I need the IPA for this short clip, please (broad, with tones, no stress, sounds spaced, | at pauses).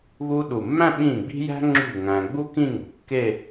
β u˧ ɗ u˨˩ mː æ̃˥˧ ɓ ĩ˥˩ ɡ͡b i̤˥ j æ̤˥ ŋ͡ǁ ṳ˥˩ ŋ æ̃˧ ɡ͡b u˥ k ĩ˥˧ ŋ ṳ˨˩ kː e˥˧